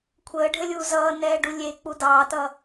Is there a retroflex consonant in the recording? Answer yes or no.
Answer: yes